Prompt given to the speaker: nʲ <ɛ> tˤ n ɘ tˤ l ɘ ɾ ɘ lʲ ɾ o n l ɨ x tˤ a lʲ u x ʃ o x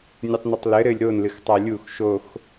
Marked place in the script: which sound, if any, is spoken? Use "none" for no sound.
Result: ɘ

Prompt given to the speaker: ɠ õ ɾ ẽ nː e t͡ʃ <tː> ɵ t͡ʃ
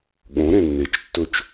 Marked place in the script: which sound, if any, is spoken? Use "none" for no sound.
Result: tː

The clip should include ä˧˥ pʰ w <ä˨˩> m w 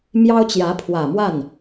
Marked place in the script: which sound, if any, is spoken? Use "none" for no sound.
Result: ä˨˩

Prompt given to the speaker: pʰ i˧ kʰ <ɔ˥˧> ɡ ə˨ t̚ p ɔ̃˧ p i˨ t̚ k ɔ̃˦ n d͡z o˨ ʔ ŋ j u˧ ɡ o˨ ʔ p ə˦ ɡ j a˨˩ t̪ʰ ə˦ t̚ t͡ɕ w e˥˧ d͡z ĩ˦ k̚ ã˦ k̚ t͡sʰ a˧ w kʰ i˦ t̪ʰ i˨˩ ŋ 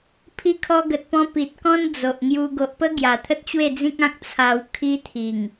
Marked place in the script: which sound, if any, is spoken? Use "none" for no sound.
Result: ɔ˧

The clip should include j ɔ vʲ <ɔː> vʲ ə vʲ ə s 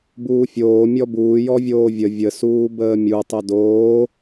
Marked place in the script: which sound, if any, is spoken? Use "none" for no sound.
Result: oː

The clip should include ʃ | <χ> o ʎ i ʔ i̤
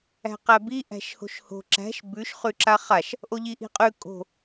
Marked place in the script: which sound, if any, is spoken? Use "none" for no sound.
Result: ʔ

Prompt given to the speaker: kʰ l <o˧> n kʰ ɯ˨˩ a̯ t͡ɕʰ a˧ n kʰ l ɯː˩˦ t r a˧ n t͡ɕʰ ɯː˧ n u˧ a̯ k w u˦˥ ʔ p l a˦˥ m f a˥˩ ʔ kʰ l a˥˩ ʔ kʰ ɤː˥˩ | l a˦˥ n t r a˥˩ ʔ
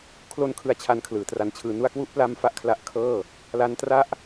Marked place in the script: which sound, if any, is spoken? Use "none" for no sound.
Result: o˧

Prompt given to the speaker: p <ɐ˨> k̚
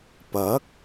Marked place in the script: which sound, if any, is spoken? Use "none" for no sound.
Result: ɐ˨˥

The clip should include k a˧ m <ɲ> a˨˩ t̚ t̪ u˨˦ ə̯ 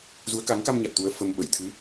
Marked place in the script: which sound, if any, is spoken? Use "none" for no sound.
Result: ɲ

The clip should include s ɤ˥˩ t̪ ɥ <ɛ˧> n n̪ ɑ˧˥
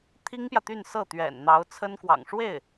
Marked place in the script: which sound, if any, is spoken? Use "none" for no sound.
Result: ɛ̰˨˩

